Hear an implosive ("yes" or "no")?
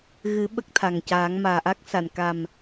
yes